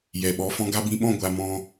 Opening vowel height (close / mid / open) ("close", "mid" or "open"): mid